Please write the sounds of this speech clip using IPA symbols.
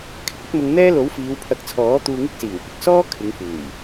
kʰ ɪ˨ k̚ ɐ˥ t̚ m ʊ˧ ŋ n̪ ɛː˥ l o˨˥ w f iː˨˧ w pʰ ɐ˨˥ k̚ t͡sʰ ɔː˨˥ t̪ uː˧ ŋ ɪ˥ k̚ s iː˨˩ w p ɪ˧ k̚ s ɔː˥ kʰ ɪ˨˧ ŋ f uː˨˩ j

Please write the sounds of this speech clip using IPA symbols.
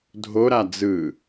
dʱ o ɾ a d͡z ɯ

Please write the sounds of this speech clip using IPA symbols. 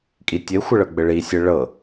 kʼ i tʲ ɘ xʷ ɘ ɭ ɤ ɡ͡b ɘ ɭ i sʲ ɘ ɭ ɤ

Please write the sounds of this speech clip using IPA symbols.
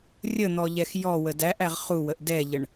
rʲ ə n̪ ɔ ʎ ɛ x j ɔ w ə d æ ʔ æ ʁ χ u w ə ʔ d ɛ ʎ ə ɳ

